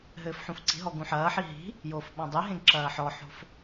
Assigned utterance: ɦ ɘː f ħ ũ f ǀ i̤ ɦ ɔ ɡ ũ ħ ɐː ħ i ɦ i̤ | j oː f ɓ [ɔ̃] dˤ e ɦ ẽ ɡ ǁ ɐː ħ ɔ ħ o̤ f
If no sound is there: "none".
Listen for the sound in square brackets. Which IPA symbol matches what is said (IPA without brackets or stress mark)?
ɔ̃